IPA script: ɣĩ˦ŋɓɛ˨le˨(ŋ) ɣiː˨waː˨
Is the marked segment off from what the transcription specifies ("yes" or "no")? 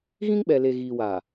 yes